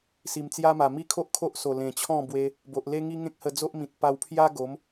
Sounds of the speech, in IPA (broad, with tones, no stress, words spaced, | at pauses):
si˨˩mt͡sja˦ma˨˩ mi˦kʰo˦ʔ kʰo˦ʔso˨˩ lẽ˨˩t͡ɕʰɔ̃˥˧bwe˧ | bo˨ʔle˦ŋi˦ ŋẽ˦k̚hə˧ d͡zo˦ʔmĩ˨t̚ pa˧wpʰja˦ ɡo˨˦m